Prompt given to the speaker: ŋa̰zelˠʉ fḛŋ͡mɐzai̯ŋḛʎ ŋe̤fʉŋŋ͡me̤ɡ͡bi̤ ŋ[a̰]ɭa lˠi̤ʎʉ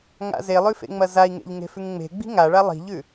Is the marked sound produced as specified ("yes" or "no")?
no